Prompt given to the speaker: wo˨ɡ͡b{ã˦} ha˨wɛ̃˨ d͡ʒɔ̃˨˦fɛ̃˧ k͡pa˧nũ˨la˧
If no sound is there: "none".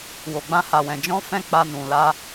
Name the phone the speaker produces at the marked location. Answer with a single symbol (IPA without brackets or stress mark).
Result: ã˧